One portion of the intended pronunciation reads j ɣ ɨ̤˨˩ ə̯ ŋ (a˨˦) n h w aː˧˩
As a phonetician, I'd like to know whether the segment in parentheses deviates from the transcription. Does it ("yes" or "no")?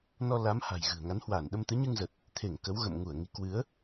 no